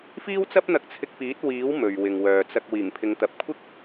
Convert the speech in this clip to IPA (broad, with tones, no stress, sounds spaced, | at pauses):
f iː˥ w t͡s ɐ˥ p̚ n̪ ɐ˧ k̚ t͡sʰ ɪ˧ k̚ p iː˨˥ t̚ w iː˨˥ w m ɵ˨ ɥ w ɪ˨ ŋ w œː˨ t͡s ɐ˧ k̚ w iː˨˩ ŋ pʰ ɪ˨˧ ŋ t̪ ɐ˨˥ p̚ kʷʰ ɪ˥ k̚